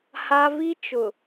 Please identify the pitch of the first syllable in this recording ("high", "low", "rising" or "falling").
high